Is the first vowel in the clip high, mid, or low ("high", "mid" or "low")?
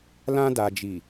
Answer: low